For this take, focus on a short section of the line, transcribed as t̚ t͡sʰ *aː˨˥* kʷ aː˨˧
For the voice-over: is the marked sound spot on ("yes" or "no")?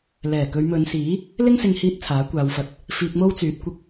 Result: yes